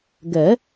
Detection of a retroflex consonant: absent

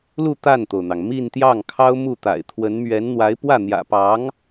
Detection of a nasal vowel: absent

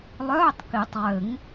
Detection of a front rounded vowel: present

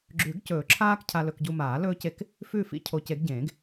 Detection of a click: present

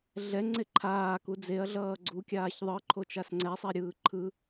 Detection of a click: present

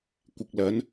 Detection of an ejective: absent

